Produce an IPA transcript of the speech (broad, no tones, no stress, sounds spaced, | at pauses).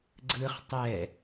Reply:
ɡ͡ǀ ɯ χ tˤ ɛ